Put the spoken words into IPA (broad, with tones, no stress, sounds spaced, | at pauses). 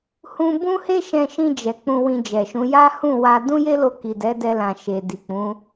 h ũ˧ b ũ˦ h e˦ ʃ ɛ̃˧ ʃ ĩ˧ d͡ʒ ɛ˨ k͡p ũ˧ w ĩ˧ d͡ʒ ɛ˨ ʃ ũ˨˦ j a˦ h ũ˦˨ w a˧ d ũ˦ j e˦ l o˧ k i˨ d ɛ˨˦ d ɛ˧ l ã˨ ʃ e˨ d i˨ k͡p ũ˨˦